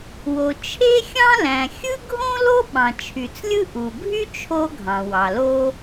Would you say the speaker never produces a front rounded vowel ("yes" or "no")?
no